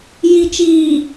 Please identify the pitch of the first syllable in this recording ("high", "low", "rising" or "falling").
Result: low